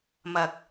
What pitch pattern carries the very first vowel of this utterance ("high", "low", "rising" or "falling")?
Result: low